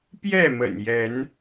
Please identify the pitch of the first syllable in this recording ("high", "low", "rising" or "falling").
falling